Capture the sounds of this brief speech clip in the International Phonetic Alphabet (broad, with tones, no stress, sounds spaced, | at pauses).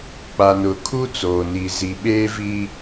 k͡p a˨ n ʊ˨ kʰ u˦ t͡s oː˨ n i˨ z i˨ ɓ eː˦ v i˦